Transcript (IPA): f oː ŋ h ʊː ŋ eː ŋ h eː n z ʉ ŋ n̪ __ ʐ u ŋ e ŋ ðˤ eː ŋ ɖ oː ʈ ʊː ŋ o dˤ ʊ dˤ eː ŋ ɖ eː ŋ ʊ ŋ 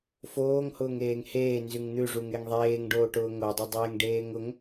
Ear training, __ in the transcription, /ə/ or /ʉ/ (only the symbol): ʉ